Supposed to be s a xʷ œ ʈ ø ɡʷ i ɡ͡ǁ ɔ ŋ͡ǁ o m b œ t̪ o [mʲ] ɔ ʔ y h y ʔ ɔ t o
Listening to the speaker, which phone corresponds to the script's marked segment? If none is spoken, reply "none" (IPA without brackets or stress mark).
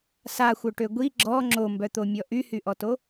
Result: mʲ